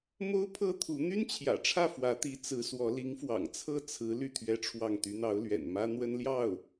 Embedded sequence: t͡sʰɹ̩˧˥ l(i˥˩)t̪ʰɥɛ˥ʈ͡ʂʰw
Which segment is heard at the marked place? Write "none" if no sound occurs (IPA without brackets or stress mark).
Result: y˥˩